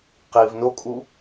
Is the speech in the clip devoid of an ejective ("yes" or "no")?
no